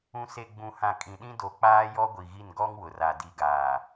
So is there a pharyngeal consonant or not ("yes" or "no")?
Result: no